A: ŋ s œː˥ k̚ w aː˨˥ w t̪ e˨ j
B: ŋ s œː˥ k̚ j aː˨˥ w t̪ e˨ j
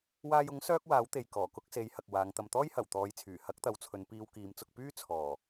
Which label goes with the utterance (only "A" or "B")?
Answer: A